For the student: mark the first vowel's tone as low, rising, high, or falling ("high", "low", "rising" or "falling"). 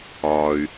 low